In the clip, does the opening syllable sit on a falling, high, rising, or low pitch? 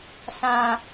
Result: high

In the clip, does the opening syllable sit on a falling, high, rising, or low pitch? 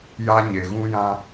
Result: high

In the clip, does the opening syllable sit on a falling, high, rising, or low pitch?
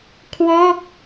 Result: falling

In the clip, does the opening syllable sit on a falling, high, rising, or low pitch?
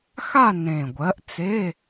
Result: falling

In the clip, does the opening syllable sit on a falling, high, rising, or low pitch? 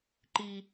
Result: high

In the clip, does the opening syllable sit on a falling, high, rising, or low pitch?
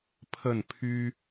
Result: falling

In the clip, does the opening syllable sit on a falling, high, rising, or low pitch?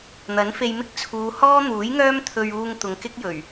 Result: rising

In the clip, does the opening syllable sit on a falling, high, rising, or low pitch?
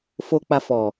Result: low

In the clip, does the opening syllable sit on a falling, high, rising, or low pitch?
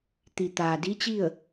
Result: low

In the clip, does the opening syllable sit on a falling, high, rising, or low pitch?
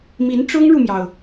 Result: rising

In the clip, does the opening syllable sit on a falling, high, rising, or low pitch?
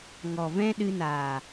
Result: low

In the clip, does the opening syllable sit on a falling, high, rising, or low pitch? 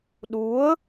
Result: rising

